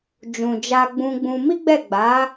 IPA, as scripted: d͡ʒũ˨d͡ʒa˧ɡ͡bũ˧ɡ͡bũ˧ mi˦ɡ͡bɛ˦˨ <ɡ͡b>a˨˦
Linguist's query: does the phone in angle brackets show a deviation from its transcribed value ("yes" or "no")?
no